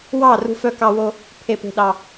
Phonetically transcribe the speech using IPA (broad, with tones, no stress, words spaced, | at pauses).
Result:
wɑ˧˩ rṳ˧fœ˧kɑ˧wo˧ | pʰe˧pe̤˧ɗɑ˧